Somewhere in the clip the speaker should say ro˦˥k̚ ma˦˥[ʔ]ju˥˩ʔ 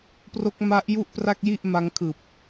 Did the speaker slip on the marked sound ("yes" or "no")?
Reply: no